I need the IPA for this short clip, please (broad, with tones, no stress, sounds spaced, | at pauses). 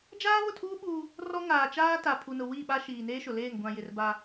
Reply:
d͡ʒ aː˦ β ʊ˦˨ tʰ uː˦ ɓ uː˦ | r ɔ˦ ŋ aː˨ t͡ʃ aː˦ t a˨ pʰ u˨ n ʊ˨ w i˦˨ ɓ a˦ ʃ iː˨ n eː˦ ʃ ʊ˨ l eː˦˨ ŋ ɡʷ ã˨ j ɪ˨ r b a˦